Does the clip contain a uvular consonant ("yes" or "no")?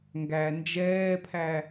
no